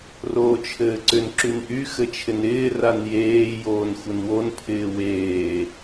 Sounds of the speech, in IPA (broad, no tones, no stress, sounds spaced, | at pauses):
r oː t͡ʃʰ ɘː ǀ ʏ n ǁ y n ʔ y x ɘ t͡ʃʰ ɪ n ɪː r a n j eː j oː n xʷ ɘ n w o n pʰ ɪː w eː